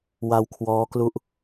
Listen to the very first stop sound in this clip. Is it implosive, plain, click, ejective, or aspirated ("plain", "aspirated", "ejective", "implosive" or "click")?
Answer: aspirated